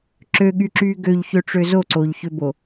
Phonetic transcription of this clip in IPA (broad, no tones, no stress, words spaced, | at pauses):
ǁøɠyǁyː ɡøʎçøʈ͡ʂø zoǀoːʎçøbo